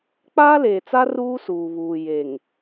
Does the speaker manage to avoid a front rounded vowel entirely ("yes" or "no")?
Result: yes